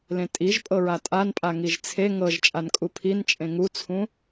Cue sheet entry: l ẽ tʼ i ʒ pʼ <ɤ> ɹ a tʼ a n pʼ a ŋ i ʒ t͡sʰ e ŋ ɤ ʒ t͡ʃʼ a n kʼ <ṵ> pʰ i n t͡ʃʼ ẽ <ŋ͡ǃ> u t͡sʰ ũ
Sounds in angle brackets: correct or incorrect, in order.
correct, incorrect, incorrect

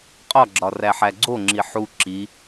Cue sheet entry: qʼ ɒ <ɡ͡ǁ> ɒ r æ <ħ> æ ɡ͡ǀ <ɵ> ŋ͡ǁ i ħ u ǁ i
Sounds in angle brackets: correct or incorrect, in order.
correct, correct, incorrect

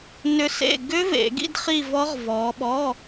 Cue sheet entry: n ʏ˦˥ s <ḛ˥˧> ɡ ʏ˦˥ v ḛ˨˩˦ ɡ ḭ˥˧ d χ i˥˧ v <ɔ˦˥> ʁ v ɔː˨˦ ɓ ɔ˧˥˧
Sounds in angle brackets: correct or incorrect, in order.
correct, correct

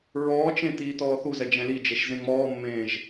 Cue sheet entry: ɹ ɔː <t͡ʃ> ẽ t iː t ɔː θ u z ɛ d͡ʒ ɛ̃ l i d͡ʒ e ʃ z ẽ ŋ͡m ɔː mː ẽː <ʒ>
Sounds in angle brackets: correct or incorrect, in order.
correct, correct

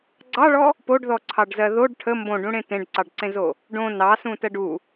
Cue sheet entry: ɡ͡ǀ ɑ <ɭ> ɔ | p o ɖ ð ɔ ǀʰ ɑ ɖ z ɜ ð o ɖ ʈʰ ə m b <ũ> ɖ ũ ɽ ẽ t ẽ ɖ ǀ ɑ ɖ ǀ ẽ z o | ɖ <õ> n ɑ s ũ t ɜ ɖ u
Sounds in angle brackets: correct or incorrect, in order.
correct, incorrect, correct

